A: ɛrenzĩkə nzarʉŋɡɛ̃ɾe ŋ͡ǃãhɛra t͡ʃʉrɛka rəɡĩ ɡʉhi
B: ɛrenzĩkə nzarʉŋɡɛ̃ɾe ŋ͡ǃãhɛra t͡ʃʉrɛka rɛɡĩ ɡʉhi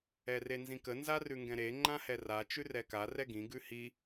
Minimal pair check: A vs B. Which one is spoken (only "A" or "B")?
B